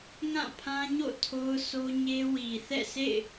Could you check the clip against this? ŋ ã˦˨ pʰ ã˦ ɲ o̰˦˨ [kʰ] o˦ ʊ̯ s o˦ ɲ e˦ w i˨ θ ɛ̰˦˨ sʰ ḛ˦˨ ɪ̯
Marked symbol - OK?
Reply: no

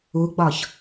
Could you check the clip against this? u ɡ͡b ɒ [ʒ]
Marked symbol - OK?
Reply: no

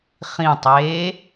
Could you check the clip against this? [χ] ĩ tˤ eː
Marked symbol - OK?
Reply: yes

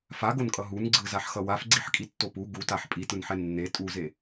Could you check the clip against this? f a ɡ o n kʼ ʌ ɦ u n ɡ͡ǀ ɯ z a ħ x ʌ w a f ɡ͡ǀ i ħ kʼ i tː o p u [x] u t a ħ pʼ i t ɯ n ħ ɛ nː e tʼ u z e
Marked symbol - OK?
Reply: no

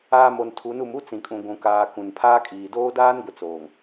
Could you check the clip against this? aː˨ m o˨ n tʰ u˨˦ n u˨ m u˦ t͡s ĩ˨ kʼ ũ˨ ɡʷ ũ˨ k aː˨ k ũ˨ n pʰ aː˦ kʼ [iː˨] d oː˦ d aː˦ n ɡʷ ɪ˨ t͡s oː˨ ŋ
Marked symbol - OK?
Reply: yes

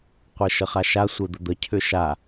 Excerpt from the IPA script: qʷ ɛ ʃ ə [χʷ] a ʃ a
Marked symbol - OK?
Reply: no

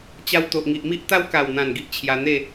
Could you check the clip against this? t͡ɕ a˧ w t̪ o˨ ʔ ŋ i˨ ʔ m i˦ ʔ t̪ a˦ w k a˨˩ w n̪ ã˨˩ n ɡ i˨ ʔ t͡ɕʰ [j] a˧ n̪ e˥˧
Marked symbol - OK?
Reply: yes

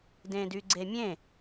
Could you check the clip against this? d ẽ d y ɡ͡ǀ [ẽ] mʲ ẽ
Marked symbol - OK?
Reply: no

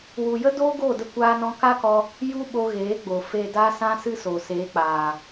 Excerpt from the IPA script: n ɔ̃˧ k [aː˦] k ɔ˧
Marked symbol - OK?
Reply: no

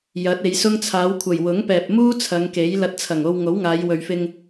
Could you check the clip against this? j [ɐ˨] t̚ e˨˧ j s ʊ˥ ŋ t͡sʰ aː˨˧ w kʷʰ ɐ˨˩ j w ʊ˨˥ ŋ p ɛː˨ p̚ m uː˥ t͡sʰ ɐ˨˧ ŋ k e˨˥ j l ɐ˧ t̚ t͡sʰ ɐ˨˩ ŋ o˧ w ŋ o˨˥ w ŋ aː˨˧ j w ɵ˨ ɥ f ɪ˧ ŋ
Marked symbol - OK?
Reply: no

